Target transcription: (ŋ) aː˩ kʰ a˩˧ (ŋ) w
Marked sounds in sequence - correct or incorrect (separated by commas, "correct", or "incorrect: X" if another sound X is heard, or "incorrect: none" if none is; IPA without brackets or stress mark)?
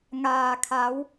correct, incorrect: none